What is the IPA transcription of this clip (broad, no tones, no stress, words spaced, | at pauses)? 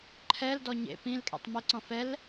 ǃʰɛldɔ ɲḛ pĩl kʼɛ̰tˤmeǀɔ̃ fɛl